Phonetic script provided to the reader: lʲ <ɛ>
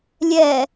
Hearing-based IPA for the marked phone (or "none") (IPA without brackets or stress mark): ɛ